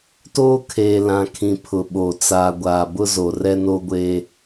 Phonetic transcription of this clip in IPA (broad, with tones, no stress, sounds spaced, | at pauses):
t oː˦ kʰ eː˨ l ã˨ kʰ ĩ˨ pʰ ʊ˨ ɓ o˨ t͡s aː˨ ɡʷ aː˨ b ʊ˦ z o˨ r ɛ˦ n oː˦ ɡʷ eː˦